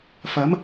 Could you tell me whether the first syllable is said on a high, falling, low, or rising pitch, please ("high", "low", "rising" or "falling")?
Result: rising